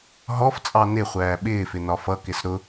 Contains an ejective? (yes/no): yes